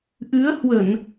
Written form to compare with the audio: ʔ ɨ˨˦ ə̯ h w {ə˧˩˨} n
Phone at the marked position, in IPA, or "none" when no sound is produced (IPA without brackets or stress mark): ə˧˩˨